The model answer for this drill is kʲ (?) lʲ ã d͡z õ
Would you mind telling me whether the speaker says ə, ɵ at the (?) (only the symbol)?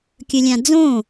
ɵ